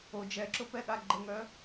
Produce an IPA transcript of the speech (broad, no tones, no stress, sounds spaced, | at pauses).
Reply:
o d͡ʒ ɛ ǁ ʊ p ɛ ɠ a ɡ͡ǃ ə ŋ œ